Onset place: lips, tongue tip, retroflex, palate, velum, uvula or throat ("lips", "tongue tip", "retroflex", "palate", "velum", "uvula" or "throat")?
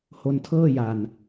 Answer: throat